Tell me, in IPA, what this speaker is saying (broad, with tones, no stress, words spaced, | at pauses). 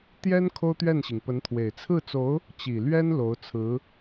t̪jɛ˥n kʰo˥ʊ̯t̪ɥɛ˥˩nɕi˩ŋ pə˧˥nt̪ʰwe˨˩ɪ̯ t͡sʰɹ̩˥˩t͡so˧˥ʊ̯ | t͡ɕi˨˩lɥɛ˥n lo˧˥ʊ̯t͡sʰɹ̩˧˥